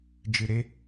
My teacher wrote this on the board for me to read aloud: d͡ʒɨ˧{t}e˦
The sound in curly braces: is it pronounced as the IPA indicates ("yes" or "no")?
no